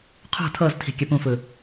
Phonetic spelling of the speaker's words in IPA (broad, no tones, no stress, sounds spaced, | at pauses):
qʰ ṳ tʰ ɤ z tʰ i̤ kʲ ɯ p ũ f ɯ